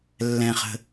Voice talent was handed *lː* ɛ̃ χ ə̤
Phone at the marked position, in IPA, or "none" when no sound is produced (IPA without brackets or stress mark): lː